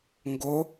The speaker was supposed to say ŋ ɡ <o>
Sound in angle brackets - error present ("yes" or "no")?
no